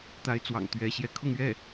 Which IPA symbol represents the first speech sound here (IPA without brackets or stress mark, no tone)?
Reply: t̪